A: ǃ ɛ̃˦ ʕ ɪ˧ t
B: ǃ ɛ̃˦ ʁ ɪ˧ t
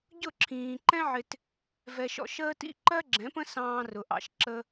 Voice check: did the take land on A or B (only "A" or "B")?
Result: A